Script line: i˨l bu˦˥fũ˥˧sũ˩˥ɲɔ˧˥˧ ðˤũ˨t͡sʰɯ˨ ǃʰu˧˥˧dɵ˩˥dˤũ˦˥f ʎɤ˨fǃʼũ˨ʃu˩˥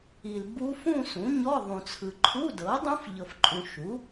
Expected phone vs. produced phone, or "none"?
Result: ɵ˩˥ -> ɤ˩˥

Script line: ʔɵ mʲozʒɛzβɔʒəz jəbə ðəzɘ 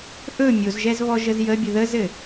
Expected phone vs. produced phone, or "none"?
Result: b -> bʲ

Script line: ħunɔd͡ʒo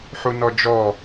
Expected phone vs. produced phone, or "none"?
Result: o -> ɔ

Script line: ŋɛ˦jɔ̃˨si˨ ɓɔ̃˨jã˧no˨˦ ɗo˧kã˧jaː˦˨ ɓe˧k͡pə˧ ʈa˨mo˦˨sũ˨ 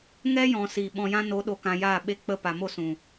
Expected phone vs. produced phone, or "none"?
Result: ʈ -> p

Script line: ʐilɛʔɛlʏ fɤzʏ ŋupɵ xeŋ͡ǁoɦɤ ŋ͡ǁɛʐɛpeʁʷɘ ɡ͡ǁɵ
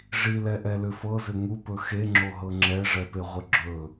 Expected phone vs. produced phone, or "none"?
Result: none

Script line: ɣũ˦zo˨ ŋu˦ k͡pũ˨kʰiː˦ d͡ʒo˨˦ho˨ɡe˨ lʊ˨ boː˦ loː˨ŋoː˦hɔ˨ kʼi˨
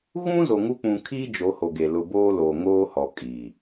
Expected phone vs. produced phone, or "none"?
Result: none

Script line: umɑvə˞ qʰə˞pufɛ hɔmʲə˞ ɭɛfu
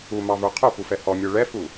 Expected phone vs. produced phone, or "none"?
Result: none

